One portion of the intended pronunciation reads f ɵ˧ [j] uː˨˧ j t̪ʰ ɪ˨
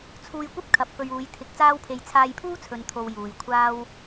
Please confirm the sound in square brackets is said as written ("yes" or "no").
no